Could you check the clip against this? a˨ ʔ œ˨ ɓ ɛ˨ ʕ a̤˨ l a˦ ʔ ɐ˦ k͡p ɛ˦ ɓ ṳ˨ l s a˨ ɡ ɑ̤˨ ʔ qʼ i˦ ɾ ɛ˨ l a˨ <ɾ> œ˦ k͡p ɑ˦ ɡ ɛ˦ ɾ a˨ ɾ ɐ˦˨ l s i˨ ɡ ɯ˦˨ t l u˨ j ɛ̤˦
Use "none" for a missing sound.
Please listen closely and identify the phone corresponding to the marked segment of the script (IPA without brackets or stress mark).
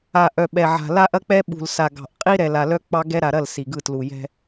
l